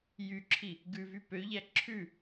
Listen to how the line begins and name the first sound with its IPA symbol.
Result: j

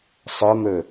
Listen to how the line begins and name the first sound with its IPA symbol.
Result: sˤ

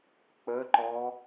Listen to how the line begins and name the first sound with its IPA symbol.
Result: k͡p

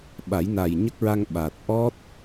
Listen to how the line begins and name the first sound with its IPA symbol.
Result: ɓ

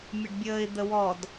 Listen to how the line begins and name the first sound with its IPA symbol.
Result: mʲ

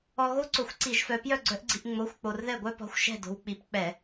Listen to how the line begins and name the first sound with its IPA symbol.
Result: ɔ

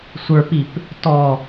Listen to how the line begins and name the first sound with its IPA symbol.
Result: sʷ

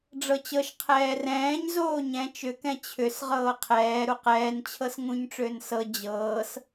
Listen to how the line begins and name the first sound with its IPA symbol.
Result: ɖ͡ʐ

